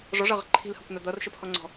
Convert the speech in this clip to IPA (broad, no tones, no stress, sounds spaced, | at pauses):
ʐ ɔ ʐ ʌ ʁ ə̤ ǃʰ i̤ l h ʌ kʷ n̪ a d̪ ʌ r ʃ ə pʰ ɔ ŋ͡ǀ ɔ̤